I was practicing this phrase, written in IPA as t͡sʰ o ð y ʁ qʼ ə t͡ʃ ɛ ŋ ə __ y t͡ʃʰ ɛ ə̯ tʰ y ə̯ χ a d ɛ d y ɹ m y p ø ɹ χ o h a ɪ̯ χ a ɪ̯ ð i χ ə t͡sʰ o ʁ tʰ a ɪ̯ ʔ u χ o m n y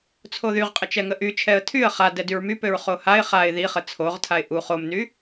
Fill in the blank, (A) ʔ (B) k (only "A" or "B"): A